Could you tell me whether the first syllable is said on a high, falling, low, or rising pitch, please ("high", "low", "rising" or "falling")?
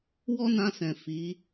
high